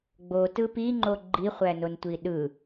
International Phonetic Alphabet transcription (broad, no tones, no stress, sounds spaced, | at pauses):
ɡ͡b o t ɯ p i ŋ͡ǃ o ɡ͡ǃ i χʷ æ n o n tʷ i ɗ ɯ